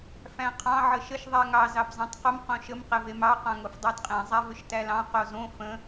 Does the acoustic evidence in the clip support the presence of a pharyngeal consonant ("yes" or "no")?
yes